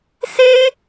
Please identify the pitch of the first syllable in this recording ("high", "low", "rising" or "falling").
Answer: high